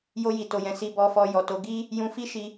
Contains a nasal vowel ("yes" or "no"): yes